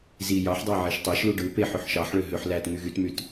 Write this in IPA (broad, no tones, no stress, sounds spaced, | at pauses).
z i j ɑ ħ dˤ ɑ ʕ i ʃ tˤ æ ʃ l u ɖ ɯ p e ħ ø ħ ʃ ɑ ħ ɭ ø ɦ ø ħ l æ t ŋ y ɣ y t m y t